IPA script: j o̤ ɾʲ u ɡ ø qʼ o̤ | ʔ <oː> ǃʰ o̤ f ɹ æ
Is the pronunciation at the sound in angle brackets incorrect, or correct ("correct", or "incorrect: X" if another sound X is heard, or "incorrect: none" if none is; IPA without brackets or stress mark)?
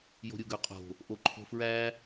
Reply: incorrect: o